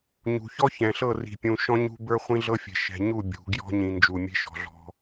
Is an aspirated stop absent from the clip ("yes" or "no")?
yes